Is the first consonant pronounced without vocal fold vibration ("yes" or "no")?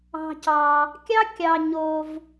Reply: yes